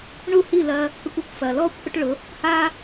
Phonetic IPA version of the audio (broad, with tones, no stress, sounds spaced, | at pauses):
ɳ u˦˨ h i˦˨ l ɐ˧ | k ə˧ kʷ ɐ˦ kʷ f ɐː˨ l ɔː˦ kʷ ʔ ʊ˦ ʈ ɭ ʊ˨˦ | h a˦